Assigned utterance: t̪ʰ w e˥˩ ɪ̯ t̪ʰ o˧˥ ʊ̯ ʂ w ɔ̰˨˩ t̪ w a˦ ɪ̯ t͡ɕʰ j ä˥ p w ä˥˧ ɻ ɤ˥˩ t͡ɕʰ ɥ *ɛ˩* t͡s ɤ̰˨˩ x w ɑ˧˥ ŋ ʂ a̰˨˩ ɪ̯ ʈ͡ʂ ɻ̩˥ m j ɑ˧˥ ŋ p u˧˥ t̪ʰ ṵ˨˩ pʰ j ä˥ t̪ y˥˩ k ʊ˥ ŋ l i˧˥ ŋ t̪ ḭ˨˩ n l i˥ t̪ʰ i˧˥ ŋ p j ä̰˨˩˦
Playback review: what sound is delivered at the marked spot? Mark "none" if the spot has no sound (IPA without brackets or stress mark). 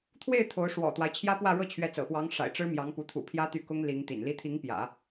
ɛ˧˥